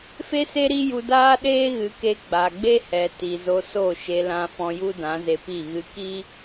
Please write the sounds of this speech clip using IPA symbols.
f e˦ s e˦ ɾ i˦ j u˧ d aː˦ ɗ eː˦ ɣ ɨ˨˦ k e˧ ɡ͡b a˨ ɡ͡b e˦ h ɛ˨ t i˨ z o˧ s o˦˨ ʃ e˧ l ã˧ f ɔ̃˧ j u˦ d ã˨˦ z e˧ p i˦˨ ɣ ɨ˧ k i˦

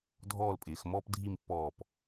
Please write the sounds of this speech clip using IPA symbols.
dʱ ɔː˥˧ l pʼ ɪː˩˧ x m ɔː˥ p dʱ i˥˧ m pː ɔː˧˩ p

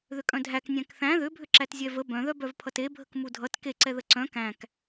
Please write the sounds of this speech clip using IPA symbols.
ð ʏ kʼ œ̃ dʱ æ k nʲ æ̃ k θ æ̃ ð ʏ bʱ ʏ ǁ æ t zʲ ɛ v ə b œ̃ ð œ b œ v pʰ ʌ t e bʱ ə k m u dʱ ʌ t k e ǀ ɛ ð ə ǀ œ̃ k æ̃ k

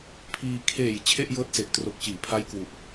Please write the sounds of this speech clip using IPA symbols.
pʰ iː˧ kʰ eː˨˩ j t͡ɕʰ e˥˩ ʔ j ɤː˦˥ t̚ s e˨˩ ʔ t r o˨˩ k̚ t͡ɕ iː˩˦ pʰ a˦˥ j k w u˨˩ ʔ

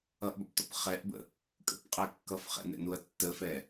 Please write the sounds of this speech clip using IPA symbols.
ʌ ʔ b ɒ p t ɔ̰ p χ ɛ ʔ b ə̰ | kʼ ə̰ p qʼ ɛ kː ʌ f χ ɛ̰ n ɛ̰ n u ɐ̯ tː ə f ɛ

